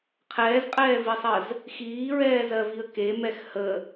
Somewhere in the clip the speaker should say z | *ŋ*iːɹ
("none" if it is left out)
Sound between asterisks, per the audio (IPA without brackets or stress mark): x